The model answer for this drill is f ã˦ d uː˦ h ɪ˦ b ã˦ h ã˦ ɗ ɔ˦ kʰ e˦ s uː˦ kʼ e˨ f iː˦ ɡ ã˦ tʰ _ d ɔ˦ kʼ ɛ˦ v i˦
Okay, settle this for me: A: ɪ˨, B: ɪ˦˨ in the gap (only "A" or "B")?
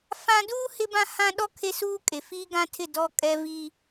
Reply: B